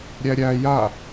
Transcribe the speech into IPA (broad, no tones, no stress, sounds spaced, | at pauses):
ɾʲ æ ɾʲ æ j a